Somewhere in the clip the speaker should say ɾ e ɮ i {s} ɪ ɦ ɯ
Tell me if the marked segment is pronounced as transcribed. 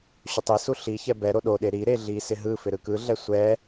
yes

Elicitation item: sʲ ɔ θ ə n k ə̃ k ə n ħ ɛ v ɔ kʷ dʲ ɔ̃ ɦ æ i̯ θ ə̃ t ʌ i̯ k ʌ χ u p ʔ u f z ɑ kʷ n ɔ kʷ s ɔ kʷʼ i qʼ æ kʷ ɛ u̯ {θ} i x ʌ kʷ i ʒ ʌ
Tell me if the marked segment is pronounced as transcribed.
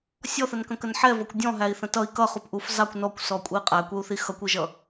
yes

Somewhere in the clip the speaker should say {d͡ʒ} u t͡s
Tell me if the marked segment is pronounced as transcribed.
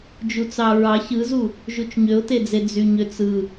yes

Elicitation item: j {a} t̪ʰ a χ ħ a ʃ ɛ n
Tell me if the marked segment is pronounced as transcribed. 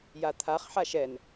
yes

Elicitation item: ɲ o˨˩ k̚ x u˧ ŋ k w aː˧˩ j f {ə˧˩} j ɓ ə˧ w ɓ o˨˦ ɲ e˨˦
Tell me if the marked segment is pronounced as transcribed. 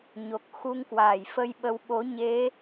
no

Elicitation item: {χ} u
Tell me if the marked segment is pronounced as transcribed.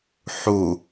no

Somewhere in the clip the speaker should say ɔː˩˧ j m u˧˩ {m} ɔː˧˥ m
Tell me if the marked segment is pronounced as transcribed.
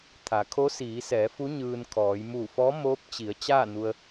no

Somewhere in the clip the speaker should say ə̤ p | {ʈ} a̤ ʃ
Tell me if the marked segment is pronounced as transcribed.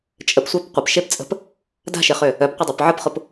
no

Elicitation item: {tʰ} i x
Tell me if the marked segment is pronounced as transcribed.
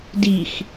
no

